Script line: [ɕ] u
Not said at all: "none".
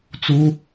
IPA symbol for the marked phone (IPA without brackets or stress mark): t͡s